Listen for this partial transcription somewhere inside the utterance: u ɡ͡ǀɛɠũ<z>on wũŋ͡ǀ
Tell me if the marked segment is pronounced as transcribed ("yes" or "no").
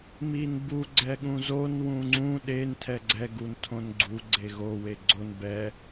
yes